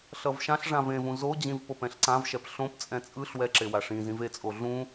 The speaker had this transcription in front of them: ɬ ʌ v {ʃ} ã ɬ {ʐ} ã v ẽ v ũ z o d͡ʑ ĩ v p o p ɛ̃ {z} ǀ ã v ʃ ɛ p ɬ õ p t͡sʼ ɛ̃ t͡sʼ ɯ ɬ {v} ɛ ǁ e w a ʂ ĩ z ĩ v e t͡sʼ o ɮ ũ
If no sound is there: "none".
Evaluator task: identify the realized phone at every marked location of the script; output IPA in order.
ʃ, ʐ, ɬ, w

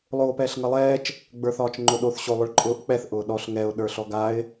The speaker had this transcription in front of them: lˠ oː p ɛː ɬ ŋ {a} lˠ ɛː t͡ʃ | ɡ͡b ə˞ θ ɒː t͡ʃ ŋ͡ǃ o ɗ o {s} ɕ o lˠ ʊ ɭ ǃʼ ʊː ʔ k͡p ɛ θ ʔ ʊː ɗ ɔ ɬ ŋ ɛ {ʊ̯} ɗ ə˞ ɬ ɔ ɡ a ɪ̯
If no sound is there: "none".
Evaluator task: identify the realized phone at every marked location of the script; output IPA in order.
ʌ, θ, ʊ̯

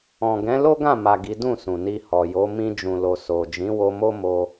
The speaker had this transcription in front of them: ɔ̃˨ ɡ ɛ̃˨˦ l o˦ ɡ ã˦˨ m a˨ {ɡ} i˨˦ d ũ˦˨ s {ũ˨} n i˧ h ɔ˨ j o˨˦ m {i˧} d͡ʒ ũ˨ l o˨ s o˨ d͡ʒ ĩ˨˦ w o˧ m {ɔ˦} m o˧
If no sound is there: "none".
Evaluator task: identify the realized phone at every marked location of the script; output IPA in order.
ɡ, ũ˨, ĩ˧, o˦

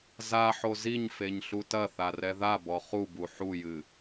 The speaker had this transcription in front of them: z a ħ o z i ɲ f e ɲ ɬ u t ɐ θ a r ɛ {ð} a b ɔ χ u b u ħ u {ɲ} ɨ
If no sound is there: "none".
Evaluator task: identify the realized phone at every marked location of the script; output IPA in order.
ð, j

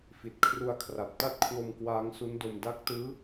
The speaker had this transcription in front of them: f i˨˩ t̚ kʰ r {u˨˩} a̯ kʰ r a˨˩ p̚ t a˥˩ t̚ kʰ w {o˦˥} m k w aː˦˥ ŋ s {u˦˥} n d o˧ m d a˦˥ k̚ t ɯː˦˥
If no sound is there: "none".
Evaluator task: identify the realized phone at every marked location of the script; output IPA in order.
u˧, o˧, u˦˥

